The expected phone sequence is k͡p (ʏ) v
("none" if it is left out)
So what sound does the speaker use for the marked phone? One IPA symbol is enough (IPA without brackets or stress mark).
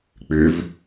ʏ